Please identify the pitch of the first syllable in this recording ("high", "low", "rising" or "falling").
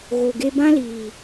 low